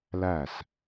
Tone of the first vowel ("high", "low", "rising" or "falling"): falling